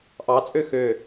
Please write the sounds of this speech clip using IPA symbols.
ʔɑt͡sʼø xø

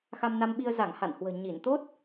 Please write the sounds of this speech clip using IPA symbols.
xa˧mna˧mɓi˧ə̯ za˧˩ŋ ha̰˧˨nhwə̤ː˨˩ ɲi˧˩nt̪o˦˥t̚

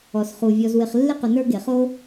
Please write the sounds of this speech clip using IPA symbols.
ɔ˩sχu˩ vʲɔ˨zwɪ˨χ lːɪ˥qʊ˨ nə˞˥ɡe˩χo˥

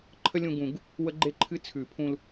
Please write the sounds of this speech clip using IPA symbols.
ǃʰə˥lʲũ˧ɡũ˨˩˦ɡ | wə˥ɡ͡ǃe˥ ǃʰɨ˥t͡sʰʉ˨˩˦ pʰũ˧l

